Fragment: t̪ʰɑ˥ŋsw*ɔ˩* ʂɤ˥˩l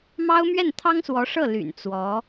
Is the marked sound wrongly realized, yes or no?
yes